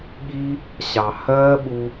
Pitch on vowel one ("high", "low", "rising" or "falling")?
high